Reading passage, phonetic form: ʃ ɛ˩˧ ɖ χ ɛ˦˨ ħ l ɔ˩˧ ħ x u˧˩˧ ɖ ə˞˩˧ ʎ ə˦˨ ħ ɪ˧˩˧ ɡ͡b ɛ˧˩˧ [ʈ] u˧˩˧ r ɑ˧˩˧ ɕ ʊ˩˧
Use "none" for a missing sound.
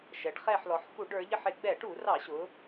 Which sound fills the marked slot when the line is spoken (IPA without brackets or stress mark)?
ʈ